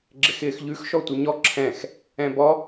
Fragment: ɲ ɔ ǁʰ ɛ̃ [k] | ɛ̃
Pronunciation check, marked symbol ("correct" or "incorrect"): incorrect